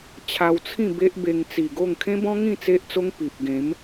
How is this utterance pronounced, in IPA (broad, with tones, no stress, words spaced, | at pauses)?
t͡ɕʰa˧wt͡sʰĩ˥˧ be˦ʔbe˧ŋ t͡si˨˩ɡo˥˧ŋ kʰẽ˦bɔ̃˦ŋĩ˥˧ t͡se˦ʔt͡so˦ŋ pi˨p̚ ɡẽ˨˦m